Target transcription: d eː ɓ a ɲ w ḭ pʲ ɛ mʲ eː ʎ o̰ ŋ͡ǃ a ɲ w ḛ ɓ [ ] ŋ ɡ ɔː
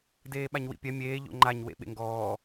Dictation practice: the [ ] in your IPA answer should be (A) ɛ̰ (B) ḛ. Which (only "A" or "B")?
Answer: B